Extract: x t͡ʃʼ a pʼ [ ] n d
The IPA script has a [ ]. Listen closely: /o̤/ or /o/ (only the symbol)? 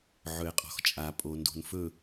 o